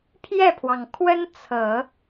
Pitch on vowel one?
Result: falling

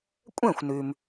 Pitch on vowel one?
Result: falling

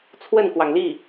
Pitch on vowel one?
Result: falling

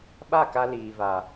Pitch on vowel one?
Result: falling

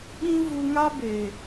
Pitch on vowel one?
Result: high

